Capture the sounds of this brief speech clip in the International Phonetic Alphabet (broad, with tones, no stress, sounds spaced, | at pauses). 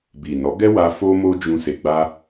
b i˨ n ɔ˨˦ ɡ ɛ˦ w a˧ f o˧ m o˧ d͡ʒ ũ˧ s e˧ ɡ͡b a˦